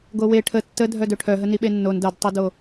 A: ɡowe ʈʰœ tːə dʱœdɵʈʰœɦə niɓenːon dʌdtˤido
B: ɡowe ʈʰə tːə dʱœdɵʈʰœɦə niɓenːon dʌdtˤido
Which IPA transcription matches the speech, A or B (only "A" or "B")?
B